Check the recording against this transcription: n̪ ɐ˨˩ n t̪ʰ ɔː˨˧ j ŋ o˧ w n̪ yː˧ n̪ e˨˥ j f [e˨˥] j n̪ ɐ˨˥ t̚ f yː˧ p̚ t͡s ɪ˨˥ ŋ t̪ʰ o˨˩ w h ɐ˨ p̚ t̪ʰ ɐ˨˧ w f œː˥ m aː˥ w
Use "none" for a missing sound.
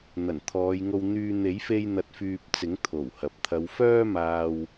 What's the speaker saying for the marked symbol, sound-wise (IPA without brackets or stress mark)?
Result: e˧